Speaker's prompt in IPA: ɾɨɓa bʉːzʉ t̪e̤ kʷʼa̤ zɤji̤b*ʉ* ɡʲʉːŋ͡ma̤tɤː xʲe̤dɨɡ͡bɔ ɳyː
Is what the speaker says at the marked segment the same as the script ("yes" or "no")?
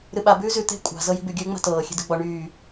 yes